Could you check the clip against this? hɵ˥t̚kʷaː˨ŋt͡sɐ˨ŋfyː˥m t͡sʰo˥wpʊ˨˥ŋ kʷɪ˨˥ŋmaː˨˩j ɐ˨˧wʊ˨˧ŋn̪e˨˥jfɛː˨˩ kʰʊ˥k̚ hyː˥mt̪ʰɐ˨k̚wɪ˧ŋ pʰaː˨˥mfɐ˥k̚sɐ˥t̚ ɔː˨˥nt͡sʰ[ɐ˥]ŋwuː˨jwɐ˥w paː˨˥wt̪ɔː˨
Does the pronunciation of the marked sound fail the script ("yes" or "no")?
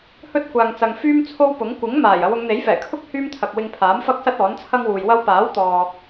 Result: no